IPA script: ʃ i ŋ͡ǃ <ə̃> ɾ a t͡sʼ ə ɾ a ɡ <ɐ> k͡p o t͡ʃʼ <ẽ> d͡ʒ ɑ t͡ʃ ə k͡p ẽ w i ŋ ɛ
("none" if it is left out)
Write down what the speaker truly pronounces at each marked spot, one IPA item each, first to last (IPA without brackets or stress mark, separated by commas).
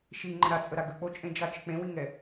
ə̃, ə, ẽ